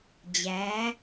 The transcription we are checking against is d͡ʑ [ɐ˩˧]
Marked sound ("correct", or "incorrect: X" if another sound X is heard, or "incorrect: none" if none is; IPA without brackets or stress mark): incorrect: æ˩˧